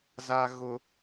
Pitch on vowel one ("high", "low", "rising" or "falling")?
low